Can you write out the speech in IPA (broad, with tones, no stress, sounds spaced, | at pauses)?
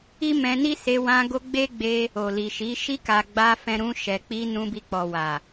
i˦ m ɛ̃˧ n i˦ s e˧ w ã˧ ɡ o˧ ɡ͡b e˦ ɡ͡b e˧ | o˨ l i˨ ʃ i˨˦ ʃ i˧ k a˨ ɡ͡b a˧ f ɛ̃˧ ɾ ũ˧ ʃ ɛ˨ k͡p i˧ n ũ˧ b i˧ k͡p ɔ˨ w a˨